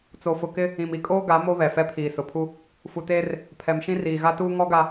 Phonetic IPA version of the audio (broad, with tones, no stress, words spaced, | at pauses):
t͡so˨fʊ˨kɪ˦ | ĩ˨mi˨kʼoː˦ ɡa˨˦ mo˦ βɛ˨fɛ˦ pʰiː˨sʊ˨pʰu˦ | fu˨teː˦r | pʰɛ˨mʃĩ˦ riː˨ɣa˦tuː˦ ŋɔ˦ɡa˨